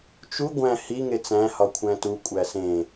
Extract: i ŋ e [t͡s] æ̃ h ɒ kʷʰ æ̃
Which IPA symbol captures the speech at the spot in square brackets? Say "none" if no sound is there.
t͡s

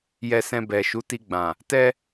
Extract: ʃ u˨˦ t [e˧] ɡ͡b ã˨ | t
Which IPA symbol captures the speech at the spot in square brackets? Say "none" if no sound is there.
i˧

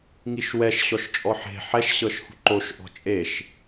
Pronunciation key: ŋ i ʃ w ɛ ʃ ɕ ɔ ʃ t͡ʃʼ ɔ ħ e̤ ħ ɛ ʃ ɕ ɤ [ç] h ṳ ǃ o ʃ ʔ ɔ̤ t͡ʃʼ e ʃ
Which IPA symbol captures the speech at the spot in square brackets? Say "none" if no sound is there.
ʃ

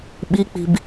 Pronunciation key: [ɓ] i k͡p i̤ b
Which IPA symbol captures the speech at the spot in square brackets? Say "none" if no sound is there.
ɓ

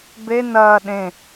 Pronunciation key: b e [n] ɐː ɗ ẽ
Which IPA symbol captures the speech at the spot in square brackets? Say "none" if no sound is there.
n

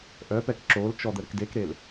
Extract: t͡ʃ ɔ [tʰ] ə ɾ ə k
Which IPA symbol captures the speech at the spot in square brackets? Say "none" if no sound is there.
d̪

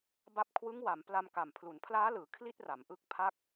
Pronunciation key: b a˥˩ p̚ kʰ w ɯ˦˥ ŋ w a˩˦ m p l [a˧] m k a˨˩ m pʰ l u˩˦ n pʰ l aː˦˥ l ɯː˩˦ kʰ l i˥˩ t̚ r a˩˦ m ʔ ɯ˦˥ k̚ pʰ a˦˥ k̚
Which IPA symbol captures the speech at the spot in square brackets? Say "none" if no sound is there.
a˧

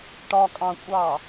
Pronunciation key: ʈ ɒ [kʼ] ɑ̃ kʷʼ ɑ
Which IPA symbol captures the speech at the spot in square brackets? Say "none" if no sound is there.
kʼ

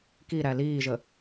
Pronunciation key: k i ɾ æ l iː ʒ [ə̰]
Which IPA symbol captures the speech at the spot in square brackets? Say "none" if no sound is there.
ə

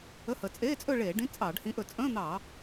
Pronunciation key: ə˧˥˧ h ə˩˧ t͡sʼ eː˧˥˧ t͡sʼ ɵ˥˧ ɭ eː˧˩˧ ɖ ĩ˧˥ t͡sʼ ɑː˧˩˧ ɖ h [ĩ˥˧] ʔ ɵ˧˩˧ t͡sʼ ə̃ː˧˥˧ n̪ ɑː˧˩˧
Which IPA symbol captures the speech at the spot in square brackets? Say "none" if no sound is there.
ĩ˧˥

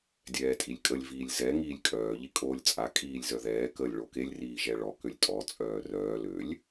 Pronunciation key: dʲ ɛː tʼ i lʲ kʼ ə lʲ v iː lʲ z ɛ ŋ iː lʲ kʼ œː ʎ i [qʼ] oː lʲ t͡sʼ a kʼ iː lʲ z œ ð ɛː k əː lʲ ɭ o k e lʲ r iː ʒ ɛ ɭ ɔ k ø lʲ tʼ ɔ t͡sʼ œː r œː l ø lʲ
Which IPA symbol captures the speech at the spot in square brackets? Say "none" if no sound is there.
kʼ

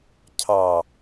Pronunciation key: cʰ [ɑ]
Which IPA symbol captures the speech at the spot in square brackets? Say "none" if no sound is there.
ɑ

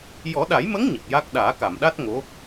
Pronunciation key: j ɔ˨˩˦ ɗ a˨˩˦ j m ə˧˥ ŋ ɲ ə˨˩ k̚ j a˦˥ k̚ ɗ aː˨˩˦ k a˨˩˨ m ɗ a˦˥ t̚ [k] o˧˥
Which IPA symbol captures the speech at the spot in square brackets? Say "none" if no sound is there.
ŋ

